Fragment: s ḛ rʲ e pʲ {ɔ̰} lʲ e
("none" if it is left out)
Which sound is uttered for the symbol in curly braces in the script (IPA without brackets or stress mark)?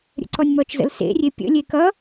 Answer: ə̰